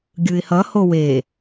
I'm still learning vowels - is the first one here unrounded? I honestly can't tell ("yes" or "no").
yes